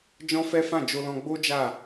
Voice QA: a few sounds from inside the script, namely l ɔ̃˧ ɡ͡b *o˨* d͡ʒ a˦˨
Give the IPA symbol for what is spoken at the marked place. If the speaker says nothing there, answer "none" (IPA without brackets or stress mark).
o˦